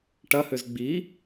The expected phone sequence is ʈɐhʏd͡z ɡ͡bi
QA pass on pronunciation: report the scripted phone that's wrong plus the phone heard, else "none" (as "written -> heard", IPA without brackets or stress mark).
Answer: d͡z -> z